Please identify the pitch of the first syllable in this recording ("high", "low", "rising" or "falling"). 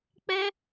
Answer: high